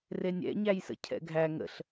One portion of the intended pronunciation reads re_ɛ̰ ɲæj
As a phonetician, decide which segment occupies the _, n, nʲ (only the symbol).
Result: nʲ